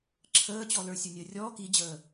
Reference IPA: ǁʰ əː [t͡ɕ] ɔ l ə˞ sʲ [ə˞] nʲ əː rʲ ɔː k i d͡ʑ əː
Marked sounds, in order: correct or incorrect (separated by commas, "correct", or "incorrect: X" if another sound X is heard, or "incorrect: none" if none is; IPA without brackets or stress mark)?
correct, correct